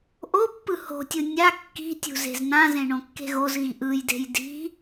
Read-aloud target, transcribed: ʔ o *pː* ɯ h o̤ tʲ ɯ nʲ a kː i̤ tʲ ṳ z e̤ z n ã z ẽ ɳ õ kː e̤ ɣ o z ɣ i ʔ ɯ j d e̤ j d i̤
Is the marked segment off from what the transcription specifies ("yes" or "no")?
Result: no